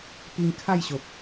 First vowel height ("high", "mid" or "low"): high